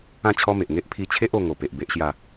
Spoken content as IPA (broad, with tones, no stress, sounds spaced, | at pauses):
ã˥˧ t͡ɕʰ ɔ˦ m e˨ ʔ ŋ e˦ ʔ pʰ i˧ t͡ɕʰ e˦ ʔ o˧ ŋ o˨˩ p e˨ ʔ b e˦ ʔ ɕ j a˥˧